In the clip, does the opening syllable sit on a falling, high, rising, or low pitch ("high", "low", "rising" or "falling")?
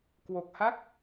low